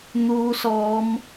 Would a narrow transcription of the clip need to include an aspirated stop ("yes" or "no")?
no